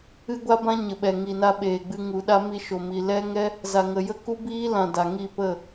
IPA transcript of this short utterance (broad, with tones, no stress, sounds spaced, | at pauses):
ɨ˦ ɡʷ a˦ b ã˦ ɲ ə˨ ɓ ɛ˨ ŋ i˨ n a˧ ɓ eː˨ ɡ͡b ɨ˧ ŋ u˨ ɗ a˦ m i˧ ʃ o˨ m i˨ l ɛ˦ ŋ ɛ˦ | z a˨ ŋ ə˨ j ə˦˨ k u˦ b iː˦ l ã˨ d a˨ ŋ i˦˨ p ə˦˨